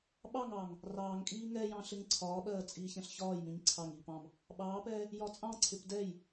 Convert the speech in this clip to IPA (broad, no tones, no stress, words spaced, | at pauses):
ɓɑŋɑːŋ | rɑːŋkʼiː ŋɛjɑ̃ ɬɪŋǀʰɒːɓɜː t͡sʼiːçɛ̃ɬçɒːjmĩɲ ǀʰɑŋiːp ɑ̃m | ɓɑːpɛː | jɒt͡sʼɑ̃ǀʰɪp dɛj